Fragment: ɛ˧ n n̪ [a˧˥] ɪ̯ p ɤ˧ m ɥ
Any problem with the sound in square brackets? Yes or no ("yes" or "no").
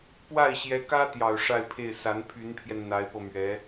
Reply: no